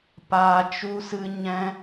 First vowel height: low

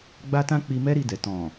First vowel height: low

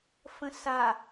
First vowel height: mid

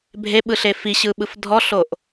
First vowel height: mid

